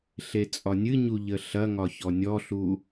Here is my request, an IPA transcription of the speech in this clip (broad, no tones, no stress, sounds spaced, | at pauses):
ɬ e t͡sʼ ɒ nʲ ɨ ɲ u ʎ ə ɬ ɐ ŋ ɒ ç ɔ nʲ ɔ ɬ u